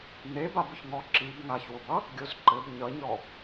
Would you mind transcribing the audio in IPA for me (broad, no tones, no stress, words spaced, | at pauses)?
n̪e babʊçŋɔ ǁib ŋaçwʊbʌ | ɡʲozǃɘb ɲʌɲɔ